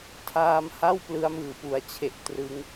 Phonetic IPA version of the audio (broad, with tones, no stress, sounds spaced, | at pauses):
tʰ aː˧ m h a˥˩ w p l ɯ˦˥ a̯ m ɯː˨˩ p u˩˦ a̯ t͡ɕʰ e˨˩ ʔ t r ɯ˦˥ ŋ